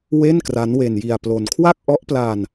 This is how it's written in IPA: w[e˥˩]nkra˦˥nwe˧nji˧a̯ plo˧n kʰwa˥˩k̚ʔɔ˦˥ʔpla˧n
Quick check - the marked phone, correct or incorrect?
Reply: correct